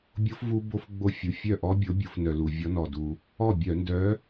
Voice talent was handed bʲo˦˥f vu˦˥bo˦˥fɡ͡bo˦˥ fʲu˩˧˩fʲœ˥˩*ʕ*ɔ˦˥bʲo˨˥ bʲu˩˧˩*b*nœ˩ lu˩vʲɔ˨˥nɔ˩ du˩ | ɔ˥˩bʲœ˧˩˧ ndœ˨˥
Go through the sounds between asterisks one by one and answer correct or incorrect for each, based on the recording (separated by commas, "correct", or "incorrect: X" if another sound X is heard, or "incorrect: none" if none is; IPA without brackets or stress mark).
incorrect: ʔ, incorrect: f